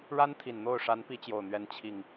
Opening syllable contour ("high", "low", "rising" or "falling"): high